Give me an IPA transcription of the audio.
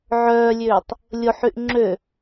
ʕœːlʲøːtˤ | lʲoħyʔ ŋ͡ǁø

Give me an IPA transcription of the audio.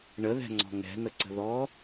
ɳəðɛ̤ŋ͡ǀɔ̤ ŋɛ̤nəǀə̤ ðɔ

